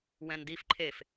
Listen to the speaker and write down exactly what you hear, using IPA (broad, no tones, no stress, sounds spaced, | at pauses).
w ɛ̃ n d i f ǃʰ e f